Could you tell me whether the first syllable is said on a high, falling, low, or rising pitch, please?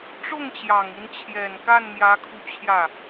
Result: falling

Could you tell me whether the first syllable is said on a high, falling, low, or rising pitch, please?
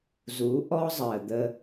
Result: rising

